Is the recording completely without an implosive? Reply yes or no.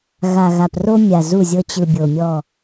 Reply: yes